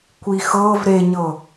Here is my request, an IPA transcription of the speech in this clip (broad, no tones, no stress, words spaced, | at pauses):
kʷixɤv ɾeɲɤ